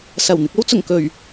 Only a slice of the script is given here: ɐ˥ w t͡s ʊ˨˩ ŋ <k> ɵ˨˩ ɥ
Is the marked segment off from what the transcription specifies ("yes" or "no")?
no